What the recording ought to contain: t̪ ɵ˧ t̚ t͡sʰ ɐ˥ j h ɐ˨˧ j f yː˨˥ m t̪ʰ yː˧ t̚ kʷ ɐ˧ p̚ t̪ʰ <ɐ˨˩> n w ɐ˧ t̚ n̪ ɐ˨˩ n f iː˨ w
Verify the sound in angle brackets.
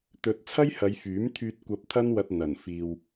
incorrect: ɐ˥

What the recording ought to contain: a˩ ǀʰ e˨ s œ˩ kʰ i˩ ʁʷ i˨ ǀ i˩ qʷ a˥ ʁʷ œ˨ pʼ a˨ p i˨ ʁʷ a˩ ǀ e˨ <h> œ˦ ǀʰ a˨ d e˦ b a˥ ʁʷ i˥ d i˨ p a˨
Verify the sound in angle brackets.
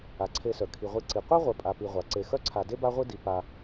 incorrect: x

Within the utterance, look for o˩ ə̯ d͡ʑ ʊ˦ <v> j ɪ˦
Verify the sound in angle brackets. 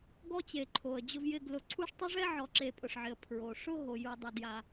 correct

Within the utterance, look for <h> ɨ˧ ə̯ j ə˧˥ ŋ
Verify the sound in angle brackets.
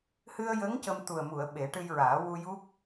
correct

